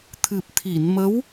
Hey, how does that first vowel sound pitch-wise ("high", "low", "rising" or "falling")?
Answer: low